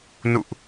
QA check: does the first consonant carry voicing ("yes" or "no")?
yes